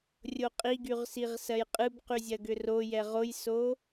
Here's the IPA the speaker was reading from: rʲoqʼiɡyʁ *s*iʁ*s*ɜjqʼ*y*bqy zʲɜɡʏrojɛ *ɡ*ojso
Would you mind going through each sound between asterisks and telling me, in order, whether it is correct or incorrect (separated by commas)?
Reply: correct, correct, incorrect, incorrect